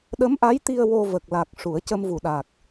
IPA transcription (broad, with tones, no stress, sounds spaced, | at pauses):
ɗ ə˧˥ m ʔ a˧˥ j t̪ i˧ ə̯ w o˧ v ə˨˩ k̚ l a˨˩ k̚ ʂ u˨˩˦ ə̯ c ə˧ m v u˨˩ ɗ a˨˩ k̚